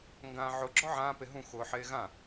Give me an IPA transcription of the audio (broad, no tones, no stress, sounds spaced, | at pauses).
ŋ ɡ ãː ʕ ʊ ɡ͡ǁ ɔ ʕ ãː p e ɦ ũ x ʊː ħ eː ɣ ã